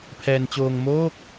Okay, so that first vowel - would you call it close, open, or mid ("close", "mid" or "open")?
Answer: mid